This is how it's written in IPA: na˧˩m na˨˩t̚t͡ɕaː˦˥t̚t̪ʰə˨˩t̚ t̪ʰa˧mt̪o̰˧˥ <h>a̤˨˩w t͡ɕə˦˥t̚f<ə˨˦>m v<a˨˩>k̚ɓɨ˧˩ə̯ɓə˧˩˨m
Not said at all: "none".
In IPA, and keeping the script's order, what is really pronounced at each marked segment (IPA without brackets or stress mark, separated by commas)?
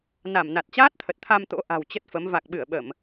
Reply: ʔ, ə˨˦, a˨˩